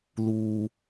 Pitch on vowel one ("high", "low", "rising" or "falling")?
low